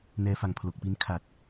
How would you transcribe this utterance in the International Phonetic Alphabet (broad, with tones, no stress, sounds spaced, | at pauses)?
n ɛː˧ f a˨˩ ŋ pʰ l o˨˩ k̚ p i˦˥ n kʰ a˨˩ t̚